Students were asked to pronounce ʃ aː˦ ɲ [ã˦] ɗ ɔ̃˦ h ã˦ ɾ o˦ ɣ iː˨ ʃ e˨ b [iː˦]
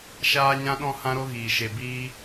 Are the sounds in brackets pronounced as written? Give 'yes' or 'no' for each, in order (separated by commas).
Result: yes, no